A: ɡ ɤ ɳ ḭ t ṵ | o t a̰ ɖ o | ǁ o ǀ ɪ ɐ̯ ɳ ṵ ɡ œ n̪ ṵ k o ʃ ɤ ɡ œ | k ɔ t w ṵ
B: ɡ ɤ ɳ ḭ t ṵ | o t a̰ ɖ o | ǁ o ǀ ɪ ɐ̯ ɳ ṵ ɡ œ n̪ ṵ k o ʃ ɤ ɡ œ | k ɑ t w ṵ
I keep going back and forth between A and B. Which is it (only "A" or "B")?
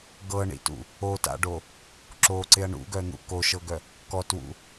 A